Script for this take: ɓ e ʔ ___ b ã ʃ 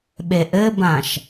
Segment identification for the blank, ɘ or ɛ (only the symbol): ɘ